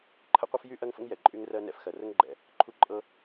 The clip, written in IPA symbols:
ǃʰ ə̰˥ qʷ ə˥ f j y˥ ʔ ɜ˥ ŋ f ə̰˥ ŋ j ɛ˨ ǃʼ y˥ ŋ r ɜ˥ n ɛ̰˥ f x ɜ˨ r ə˥ ŋ ɡ͡ǃ ɛ̰˨ | ǃʰ u˥ ǃʼ ɤ˥

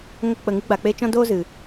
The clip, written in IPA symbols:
ŋ o˧ k͡p ə˨ ŋ ɨ˧ ɡ͡b a˨ k͡p e˧ t͡ʃ ɔ̃˦ d oː˦ z ɨ˨

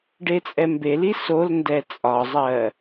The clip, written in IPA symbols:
ɖ e t͡sʼ ɛ m b e l i s o l n d ɛ t͡sʼ ɒ zˤ ɜ

